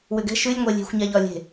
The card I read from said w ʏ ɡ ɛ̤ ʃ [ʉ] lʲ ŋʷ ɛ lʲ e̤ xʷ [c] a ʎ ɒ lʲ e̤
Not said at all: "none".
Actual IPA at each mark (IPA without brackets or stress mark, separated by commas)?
ʉ, ɲ